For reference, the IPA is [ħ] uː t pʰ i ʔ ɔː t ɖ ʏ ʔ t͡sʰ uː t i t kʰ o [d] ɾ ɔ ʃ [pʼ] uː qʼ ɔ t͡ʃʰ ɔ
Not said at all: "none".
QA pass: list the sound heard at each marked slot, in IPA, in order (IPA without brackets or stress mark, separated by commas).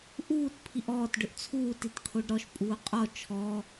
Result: ʔ, ɖ, pʼ